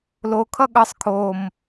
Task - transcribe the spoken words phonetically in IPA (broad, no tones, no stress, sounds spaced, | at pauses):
l o kʰ ʌ ɠ ʌ sˤ kʰ o m